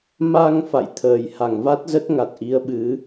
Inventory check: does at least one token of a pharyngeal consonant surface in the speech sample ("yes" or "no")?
no